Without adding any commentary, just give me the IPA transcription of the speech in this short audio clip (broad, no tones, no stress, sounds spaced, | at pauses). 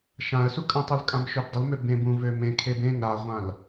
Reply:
ʃ ã ə̯ s u kʼ ə̃ tˤ u l kʼ ã m ʃ ø b dˤ ə l m ø b ẽ b ũ v ø m ẽ kʰ e b ẽ ŋ ɾ a ʁʷ ã l